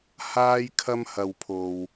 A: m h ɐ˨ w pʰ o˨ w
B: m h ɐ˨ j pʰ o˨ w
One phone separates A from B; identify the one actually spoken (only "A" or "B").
A